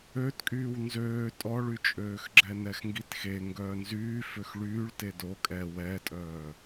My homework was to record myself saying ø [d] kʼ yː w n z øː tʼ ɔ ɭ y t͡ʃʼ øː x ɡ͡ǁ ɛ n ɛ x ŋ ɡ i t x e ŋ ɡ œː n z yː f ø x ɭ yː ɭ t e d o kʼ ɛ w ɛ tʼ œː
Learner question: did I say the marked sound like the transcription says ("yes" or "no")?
no